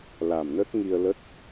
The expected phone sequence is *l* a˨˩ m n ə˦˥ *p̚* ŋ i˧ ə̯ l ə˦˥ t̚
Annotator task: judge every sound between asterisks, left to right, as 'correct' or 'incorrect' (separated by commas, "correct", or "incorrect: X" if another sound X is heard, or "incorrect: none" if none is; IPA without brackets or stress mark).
correct, incorrect: t̚